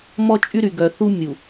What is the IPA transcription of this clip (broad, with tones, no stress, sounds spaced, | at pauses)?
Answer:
m ɔ˦ t͡ʃʼ y˦ ɾ y˨ ɡ œ˨ θ u˦ mʲ u˨